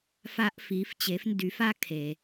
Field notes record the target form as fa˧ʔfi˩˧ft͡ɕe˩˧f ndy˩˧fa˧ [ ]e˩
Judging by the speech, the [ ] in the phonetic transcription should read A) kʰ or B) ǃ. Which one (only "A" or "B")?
A